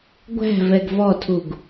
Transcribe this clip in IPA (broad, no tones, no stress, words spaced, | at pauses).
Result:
ɡʷæ̤ vɛɡvɔtʰuɡ